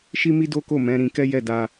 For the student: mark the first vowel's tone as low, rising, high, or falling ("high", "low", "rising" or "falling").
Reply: high